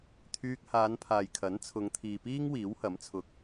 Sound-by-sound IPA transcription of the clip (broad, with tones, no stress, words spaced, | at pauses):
t̪ʰyː˧k̚haː˨˧npʰaː˨jkʰɐ˨˥n t͡sʰʊ˨˧ŋt̪ʰiː˨piː˥ŋ wiː˨˥whɐ˨˥mt͡sʰʊ˧k̚